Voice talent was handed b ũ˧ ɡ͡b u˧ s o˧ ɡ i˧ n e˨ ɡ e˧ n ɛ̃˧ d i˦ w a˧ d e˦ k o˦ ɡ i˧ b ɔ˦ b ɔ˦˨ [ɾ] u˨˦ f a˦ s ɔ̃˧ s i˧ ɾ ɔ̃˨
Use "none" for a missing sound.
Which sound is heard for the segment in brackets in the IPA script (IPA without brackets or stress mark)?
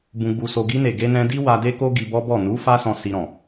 n